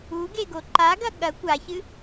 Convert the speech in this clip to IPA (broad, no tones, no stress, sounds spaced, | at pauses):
u ɡ e ɡ o ǃ a ɡ ɐ ɠ ɐ kʷ a ç ɨ